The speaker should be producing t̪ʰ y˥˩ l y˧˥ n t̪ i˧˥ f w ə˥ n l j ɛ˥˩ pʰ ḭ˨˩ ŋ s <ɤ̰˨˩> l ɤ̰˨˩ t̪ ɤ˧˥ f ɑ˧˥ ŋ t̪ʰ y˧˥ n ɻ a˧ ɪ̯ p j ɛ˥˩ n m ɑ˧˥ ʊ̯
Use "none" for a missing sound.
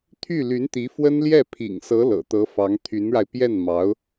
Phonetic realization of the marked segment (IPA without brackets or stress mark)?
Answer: ɤ˧˥